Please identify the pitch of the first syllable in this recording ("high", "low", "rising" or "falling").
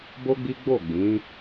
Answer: high